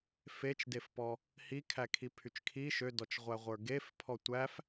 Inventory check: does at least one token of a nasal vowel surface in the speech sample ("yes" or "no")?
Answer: no